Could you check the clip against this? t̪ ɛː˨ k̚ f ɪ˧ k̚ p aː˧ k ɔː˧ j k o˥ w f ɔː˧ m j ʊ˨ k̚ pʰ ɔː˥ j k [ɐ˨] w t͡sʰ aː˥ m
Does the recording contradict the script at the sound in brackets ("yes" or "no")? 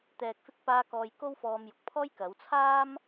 yes